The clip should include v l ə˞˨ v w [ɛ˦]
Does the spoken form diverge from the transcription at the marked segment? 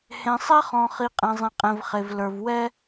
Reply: no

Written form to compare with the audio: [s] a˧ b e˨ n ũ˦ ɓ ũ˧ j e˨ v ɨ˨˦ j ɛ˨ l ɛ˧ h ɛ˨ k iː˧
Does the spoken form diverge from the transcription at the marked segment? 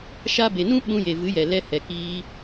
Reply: yes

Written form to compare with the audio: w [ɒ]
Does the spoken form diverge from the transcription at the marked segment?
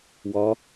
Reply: no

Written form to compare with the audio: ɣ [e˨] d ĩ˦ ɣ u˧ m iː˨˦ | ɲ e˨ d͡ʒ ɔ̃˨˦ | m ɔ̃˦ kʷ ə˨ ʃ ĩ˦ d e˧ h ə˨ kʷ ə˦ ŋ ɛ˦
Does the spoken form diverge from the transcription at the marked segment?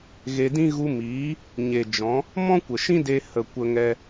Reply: yes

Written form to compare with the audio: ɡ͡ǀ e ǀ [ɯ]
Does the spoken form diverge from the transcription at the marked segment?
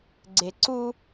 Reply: yes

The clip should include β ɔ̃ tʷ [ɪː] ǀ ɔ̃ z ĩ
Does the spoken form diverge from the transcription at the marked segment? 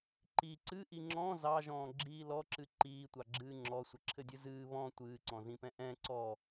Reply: yes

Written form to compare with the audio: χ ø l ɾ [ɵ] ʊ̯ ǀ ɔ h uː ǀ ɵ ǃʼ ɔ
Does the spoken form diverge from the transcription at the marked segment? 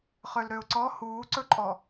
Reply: yes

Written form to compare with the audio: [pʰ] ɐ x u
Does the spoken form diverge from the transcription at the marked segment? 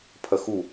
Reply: no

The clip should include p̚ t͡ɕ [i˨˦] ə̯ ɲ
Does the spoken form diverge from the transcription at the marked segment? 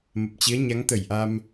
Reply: no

